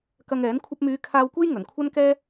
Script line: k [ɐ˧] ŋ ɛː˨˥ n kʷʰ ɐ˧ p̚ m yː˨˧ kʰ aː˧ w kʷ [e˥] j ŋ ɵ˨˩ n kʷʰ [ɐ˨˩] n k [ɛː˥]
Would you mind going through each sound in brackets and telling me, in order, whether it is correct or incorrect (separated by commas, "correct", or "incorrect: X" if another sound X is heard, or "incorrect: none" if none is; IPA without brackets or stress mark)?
correct, correct, incorrect: ɐ˥, correct